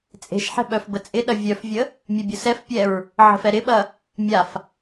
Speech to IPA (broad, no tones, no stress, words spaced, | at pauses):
t͡sʼe̤ʃħɛ̤ ɓœfbət͡sʼɪɗɐ vʲœfvʲə | mʲebʲʊsɛfpʲɛɹ | ʕə̤fɛɾɪɓɐ | mʲaf